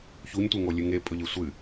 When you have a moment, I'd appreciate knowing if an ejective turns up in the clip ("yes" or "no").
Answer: yes